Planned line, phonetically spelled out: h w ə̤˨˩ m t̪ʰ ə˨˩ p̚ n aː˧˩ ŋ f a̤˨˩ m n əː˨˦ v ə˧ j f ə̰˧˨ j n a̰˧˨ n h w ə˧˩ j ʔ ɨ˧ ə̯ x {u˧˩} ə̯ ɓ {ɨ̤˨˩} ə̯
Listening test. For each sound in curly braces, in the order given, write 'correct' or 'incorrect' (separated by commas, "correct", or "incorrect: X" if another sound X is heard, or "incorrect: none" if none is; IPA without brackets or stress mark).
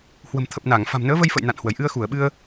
correct, incorrect: ɨ˧